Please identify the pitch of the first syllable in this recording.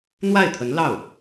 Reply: falling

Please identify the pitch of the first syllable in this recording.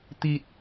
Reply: low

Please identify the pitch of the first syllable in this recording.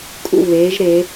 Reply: falling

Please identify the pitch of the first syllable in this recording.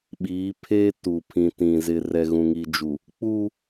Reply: rising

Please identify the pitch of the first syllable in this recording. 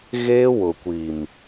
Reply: high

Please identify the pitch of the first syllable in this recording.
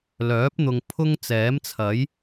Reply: rising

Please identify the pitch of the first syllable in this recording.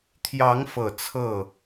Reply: rising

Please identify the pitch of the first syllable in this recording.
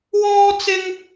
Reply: high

